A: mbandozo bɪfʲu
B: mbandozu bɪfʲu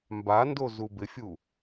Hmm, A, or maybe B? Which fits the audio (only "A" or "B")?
B